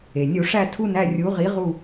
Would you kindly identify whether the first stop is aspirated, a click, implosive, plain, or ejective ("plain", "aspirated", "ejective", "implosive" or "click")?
aspirated